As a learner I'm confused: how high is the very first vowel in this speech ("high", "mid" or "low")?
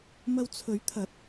low